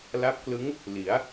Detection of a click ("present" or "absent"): absent